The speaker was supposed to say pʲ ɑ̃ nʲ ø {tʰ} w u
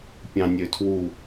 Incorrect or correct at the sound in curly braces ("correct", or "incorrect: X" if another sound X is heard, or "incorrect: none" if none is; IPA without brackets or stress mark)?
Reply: correct